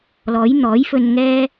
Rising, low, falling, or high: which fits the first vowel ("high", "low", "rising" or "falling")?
rising